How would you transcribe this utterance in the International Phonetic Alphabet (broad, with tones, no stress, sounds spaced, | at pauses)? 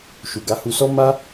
ʃ u˨ ɡ a˨˦ h u˧ s ɔ˦ m a˦